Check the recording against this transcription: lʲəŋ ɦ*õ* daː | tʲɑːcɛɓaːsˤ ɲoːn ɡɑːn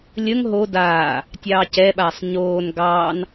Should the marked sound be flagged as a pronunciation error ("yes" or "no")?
yes